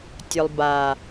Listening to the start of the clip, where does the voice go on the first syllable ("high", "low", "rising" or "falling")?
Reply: low